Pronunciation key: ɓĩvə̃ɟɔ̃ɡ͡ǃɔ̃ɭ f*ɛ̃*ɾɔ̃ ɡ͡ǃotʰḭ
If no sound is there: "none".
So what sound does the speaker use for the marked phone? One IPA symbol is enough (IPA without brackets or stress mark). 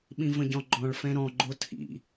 ɛ̃